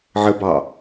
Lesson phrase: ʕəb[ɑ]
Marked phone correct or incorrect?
correct